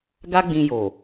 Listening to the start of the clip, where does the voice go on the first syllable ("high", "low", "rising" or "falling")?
high